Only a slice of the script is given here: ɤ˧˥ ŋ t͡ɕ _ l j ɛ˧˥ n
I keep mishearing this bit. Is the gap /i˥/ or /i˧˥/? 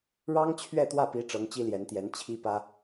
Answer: i˥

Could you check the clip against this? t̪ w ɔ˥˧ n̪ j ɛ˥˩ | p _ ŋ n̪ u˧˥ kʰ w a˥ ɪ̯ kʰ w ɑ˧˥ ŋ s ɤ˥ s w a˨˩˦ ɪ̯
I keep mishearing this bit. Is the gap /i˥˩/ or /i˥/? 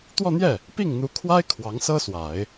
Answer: i˥˩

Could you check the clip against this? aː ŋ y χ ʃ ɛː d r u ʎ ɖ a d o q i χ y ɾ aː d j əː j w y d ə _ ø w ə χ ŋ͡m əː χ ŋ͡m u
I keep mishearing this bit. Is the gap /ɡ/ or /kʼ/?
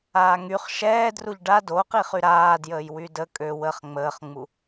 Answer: kʼ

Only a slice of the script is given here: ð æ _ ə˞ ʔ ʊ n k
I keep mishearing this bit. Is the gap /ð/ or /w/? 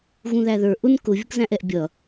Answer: ð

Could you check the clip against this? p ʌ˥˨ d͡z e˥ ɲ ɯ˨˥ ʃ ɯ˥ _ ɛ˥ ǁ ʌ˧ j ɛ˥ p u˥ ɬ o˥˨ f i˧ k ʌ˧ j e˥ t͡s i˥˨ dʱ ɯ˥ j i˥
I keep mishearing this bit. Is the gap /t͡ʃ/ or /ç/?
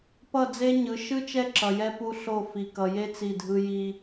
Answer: t͡ʃ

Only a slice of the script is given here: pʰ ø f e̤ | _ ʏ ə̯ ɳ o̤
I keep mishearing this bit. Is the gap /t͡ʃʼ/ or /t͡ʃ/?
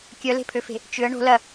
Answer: t͡ʃ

